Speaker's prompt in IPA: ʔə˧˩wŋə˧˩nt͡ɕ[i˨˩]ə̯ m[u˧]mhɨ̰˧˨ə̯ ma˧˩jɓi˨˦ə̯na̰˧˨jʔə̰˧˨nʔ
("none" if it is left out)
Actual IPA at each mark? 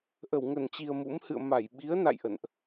i˨˩, ṵ˧˥

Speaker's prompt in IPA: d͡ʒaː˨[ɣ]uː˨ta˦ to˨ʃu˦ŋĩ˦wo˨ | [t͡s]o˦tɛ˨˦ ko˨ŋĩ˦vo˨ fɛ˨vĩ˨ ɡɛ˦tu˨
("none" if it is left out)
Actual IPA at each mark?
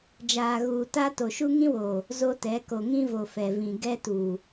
ɣ, z

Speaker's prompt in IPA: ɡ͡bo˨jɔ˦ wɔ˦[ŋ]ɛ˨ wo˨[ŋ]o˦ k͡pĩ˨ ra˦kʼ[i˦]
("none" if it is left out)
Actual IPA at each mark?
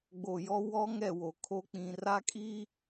ŋ, kʰ, i˦

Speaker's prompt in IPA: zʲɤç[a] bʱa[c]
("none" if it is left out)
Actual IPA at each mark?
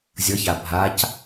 a, c

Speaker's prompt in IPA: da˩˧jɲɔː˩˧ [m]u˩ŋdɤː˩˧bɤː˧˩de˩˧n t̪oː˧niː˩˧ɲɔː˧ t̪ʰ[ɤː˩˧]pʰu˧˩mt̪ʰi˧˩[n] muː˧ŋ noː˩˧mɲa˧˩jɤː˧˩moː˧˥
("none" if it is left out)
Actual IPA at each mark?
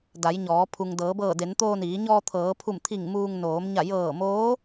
pʰ, ɤː˩˧, ŋ

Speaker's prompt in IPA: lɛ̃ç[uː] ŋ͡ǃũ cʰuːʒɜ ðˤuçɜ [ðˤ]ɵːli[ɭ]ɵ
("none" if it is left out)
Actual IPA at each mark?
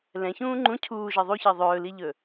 ũː, ðˤ, ʎ

